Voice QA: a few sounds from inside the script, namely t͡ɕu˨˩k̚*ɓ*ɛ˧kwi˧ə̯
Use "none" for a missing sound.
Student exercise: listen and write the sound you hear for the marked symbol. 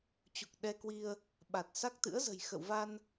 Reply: ɗ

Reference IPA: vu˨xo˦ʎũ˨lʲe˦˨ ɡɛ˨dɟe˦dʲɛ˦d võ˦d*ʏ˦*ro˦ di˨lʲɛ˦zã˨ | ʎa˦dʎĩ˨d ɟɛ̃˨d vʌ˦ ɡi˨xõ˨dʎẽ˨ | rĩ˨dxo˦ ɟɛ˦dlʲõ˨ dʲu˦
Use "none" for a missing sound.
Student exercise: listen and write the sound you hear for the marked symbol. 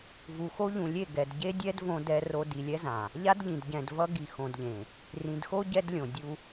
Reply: ɛ˦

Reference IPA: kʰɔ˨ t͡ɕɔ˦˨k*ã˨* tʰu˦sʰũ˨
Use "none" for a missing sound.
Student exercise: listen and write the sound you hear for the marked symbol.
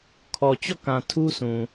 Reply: ã˨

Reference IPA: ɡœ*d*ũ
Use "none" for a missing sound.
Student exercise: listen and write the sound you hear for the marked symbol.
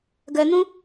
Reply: n̪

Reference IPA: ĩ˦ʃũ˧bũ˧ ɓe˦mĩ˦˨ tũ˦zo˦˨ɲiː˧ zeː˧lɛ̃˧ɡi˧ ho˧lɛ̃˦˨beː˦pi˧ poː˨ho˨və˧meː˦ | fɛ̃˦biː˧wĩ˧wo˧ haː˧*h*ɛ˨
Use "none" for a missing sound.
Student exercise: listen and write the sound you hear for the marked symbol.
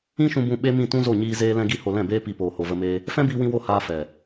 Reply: f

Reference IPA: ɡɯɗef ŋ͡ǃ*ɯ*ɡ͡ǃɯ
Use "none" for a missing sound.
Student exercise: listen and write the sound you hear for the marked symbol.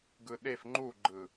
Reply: u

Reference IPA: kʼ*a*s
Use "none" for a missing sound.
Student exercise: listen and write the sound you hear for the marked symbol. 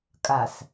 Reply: a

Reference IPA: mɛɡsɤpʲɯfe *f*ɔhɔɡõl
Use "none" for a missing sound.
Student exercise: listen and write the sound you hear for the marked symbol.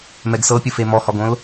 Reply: m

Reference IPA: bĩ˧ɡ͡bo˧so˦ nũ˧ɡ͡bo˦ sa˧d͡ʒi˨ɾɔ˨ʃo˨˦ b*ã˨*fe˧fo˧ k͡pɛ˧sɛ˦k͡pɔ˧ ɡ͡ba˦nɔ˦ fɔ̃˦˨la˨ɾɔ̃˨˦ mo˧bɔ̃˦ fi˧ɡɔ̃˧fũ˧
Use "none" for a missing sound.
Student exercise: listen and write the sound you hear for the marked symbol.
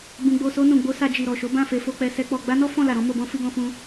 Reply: ã˦˨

